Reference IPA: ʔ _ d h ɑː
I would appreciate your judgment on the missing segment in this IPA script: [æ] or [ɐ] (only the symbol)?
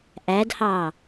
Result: æ